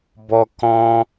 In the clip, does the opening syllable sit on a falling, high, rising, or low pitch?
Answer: high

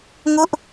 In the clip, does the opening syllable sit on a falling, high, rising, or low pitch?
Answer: falling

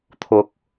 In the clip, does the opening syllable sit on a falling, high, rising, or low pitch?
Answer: low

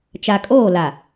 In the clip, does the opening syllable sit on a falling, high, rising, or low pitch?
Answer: low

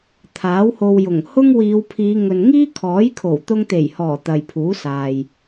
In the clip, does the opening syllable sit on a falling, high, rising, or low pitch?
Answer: rising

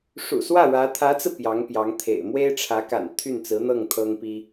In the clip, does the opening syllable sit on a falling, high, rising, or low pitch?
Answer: low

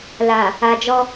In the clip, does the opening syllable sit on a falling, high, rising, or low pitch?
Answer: low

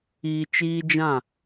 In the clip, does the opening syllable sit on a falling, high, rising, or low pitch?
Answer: low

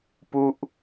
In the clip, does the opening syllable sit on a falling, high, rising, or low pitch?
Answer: falling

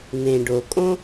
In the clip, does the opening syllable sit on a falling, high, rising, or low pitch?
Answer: low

